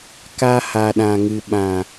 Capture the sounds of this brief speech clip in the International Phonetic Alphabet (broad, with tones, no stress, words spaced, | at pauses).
ka˧ha˨ɗã˨ŋɨ˨ ɓã˨